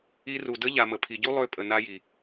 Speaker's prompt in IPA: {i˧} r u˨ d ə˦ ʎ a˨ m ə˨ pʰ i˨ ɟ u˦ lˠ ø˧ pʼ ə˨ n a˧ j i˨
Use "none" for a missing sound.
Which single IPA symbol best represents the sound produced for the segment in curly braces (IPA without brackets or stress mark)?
i˧